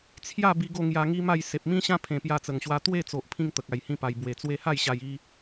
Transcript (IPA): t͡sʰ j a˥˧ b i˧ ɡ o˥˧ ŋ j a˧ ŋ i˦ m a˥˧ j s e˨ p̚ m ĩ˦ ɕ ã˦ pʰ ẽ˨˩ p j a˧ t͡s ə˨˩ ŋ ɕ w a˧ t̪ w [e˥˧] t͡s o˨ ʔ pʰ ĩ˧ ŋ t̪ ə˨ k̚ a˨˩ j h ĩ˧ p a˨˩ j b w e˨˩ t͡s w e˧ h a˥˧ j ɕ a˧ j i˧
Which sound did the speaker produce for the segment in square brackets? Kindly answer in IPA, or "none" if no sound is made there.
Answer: e˥˧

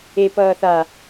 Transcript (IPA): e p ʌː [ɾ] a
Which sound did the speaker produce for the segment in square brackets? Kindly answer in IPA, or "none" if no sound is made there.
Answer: θ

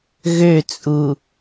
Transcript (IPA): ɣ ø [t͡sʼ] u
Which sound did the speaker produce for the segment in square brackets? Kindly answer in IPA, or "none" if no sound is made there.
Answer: t͡sʼ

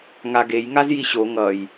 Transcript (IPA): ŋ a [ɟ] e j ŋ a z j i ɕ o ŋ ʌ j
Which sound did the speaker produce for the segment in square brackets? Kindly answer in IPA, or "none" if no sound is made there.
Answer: ɡ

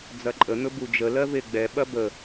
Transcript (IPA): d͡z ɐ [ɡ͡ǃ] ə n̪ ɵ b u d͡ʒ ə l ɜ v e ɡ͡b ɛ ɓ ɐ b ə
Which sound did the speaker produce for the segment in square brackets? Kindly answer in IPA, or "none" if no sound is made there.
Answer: ǃʼ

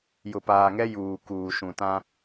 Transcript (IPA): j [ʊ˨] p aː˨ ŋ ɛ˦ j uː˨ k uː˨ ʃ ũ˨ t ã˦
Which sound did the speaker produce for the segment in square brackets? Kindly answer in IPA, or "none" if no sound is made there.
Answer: ʊ˨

